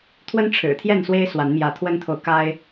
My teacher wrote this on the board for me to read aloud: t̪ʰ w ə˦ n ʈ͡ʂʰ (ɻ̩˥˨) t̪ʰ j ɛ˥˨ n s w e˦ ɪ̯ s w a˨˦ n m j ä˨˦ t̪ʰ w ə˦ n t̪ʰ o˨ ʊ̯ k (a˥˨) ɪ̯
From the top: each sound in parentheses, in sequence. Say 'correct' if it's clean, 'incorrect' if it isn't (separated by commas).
incorrect, incorrect